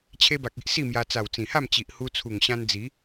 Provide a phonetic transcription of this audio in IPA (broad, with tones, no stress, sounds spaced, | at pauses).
t͡ɕʰ e˧ b a˨ k̚ i˦ ʔ s i˥˧ m j a˧ t͡s a˨˩ w t͡s ĩ˨˩ h a˥˧ m t͡ɕ i˨ ʔ h u˧ t͡sʰ u˨˩ ŋ ɕ ã˧ n d͡z i˨˦